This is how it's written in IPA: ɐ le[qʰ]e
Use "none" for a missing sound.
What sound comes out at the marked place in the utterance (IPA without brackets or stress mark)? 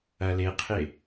qʰ